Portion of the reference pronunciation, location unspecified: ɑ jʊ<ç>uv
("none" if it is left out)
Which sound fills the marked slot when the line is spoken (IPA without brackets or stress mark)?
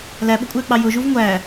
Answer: ʒ